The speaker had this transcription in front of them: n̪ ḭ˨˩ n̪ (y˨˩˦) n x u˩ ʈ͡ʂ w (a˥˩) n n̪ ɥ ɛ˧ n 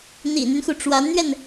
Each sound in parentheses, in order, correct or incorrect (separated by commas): incorrect, incorrect